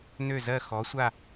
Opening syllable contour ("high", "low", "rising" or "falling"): falling